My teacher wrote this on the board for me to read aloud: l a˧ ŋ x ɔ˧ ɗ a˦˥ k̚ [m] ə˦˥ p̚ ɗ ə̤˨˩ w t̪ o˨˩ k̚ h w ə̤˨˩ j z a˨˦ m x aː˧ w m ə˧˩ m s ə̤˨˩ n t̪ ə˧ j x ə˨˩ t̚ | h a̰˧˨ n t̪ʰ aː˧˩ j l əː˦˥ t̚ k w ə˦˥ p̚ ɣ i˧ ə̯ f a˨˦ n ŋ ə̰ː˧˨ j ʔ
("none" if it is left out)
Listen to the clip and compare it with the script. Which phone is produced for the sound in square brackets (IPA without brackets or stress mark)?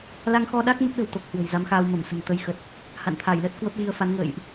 m